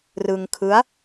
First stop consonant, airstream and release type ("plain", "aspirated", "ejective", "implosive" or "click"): aspirated